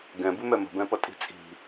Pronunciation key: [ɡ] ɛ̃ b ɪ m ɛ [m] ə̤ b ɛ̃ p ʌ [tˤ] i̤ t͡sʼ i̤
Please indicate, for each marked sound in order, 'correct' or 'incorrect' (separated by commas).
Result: correct, correct, incorrect